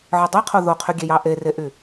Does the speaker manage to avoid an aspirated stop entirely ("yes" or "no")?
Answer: no